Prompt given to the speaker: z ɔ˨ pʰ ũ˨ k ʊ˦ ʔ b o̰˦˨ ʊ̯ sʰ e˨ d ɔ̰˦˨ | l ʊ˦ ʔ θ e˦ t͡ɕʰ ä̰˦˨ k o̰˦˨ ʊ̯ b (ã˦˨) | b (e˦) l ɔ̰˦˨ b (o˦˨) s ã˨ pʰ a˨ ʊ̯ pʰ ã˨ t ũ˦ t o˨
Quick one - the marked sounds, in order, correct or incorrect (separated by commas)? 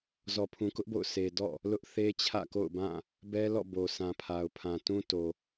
correct, incorrect, incorrect